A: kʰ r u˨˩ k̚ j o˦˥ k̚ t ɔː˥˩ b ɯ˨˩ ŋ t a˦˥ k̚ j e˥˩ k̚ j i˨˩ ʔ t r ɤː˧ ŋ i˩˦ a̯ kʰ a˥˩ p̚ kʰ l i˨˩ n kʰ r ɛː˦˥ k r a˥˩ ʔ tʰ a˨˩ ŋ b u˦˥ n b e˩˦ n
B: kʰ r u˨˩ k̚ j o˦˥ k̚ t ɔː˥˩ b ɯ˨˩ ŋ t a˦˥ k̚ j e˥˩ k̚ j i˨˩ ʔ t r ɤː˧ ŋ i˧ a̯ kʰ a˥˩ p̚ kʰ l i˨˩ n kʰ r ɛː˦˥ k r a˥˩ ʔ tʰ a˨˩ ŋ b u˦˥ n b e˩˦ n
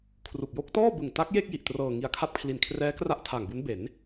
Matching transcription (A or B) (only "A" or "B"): B